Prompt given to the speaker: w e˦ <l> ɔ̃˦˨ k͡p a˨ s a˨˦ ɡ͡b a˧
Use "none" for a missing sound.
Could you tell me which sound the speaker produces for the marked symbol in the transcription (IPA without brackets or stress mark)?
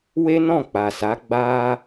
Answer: n